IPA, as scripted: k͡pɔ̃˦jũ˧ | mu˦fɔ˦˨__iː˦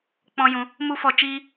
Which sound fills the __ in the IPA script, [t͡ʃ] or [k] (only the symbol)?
t͡ʃ